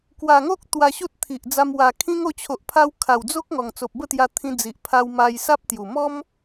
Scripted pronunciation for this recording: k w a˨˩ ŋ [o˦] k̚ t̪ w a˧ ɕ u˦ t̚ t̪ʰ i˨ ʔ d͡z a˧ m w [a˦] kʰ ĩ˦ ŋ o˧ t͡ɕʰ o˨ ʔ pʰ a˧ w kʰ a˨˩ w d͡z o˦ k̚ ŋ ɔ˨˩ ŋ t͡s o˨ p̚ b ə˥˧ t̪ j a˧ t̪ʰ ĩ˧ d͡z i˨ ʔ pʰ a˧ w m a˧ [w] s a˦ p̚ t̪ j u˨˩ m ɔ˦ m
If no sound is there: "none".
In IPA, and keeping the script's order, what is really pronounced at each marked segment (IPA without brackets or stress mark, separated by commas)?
o˦, a˨˩, j